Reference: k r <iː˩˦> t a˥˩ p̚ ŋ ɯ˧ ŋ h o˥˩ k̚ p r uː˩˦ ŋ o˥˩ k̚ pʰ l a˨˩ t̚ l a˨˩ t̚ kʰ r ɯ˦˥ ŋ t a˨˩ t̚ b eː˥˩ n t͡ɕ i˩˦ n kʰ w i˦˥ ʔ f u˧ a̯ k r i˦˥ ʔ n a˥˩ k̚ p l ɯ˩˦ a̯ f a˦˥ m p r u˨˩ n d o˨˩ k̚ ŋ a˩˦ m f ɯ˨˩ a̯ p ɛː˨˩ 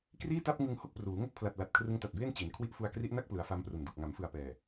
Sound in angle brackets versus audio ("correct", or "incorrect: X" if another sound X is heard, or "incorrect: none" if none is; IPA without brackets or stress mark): incorrect: iː˥˩